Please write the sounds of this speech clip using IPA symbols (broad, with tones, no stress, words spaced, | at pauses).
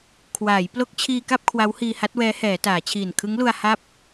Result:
kʰwaː˩˦j plo˦˥k̚t͡ɕʰiː˧ka˥˩p̚ kʰwa˦˥whiː˧ha˦˥t̚wɛː˦˥ hɛː˩˦taː˩˦t͡ɕʰiː˨˩n kʰɯ˦˥ŋlu˧a̯ ha˥˩p̚